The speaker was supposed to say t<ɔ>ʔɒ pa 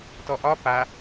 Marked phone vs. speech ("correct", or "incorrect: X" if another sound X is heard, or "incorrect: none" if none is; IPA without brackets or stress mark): correct